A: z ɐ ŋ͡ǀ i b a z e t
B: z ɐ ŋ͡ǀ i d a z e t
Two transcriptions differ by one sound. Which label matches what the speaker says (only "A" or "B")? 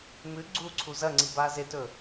A